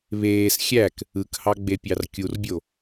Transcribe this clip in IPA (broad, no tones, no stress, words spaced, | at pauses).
βeːs xʲæk | ɯkhɑɡ͡bepʲɑr kʲurbʲo